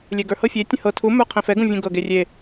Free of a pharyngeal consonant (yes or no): yes